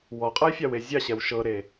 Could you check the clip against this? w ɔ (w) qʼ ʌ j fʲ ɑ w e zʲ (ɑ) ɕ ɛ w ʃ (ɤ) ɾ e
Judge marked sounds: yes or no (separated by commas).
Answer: no, yes, yes